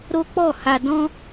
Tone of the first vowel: high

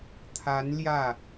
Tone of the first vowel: rising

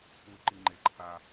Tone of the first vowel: low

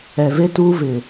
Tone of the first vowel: low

